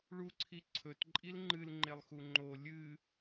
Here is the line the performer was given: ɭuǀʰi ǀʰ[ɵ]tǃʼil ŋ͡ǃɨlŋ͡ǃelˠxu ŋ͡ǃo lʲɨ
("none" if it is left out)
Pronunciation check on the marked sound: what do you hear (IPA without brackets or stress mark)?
ɵ